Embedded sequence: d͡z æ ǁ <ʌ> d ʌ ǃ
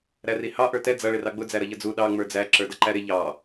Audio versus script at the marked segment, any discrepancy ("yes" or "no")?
yes